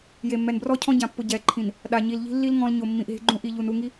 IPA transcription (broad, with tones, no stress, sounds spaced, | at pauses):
j e˨ mː ɛ˨ n b r ɔ˦ cʰ ɔ̃˦ ɟ ã˨ pː ʊ˨ ɟ ɛː˨ ǃʰ ĩ˨ n | ɗ a˨ ɲ i˨ l ʎ i̤˦ lː i˦ l ŋ ɔ̃˦ l ɲ o˨ mː ĩ˨ ʔ ɦ e̤˦ ɡ͡ǃ ũ˦ ʔ i˨ ʎ u˨ n u˦˨ ŋ i˦